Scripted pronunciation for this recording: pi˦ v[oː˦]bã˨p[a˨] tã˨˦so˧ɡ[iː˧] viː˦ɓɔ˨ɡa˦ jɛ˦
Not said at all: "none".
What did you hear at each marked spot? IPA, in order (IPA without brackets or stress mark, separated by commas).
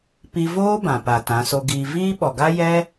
oː˦, a˨, iː˧